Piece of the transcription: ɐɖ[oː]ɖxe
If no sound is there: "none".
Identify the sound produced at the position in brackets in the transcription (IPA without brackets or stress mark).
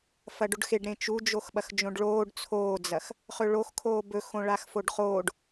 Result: o